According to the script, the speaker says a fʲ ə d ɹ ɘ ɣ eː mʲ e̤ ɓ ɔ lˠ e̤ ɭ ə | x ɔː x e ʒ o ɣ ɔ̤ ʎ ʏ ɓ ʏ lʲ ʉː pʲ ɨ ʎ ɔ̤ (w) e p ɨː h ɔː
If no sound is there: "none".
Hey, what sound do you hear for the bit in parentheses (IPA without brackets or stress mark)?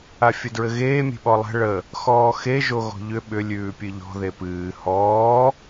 ð